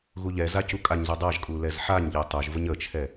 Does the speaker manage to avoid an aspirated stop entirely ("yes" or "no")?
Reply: no